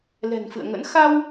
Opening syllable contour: low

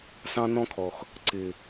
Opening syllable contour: high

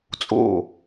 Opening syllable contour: falling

